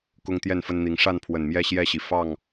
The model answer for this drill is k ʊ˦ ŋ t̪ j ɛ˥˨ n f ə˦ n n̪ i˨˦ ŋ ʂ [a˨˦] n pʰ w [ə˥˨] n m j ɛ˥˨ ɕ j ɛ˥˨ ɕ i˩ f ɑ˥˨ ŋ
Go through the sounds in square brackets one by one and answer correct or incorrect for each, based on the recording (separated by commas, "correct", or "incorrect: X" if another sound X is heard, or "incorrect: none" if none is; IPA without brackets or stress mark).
incorrect: a˥˨, incorrect: ə˨˩